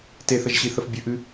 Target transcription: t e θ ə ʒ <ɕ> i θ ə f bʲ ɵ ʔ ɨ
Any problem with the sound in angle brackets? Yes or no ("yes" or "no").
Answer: no